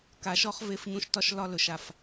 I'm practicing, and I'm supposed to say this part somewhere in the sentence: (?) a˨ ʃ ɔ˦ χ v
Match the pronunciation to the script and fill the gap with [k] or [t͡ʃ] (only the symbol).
k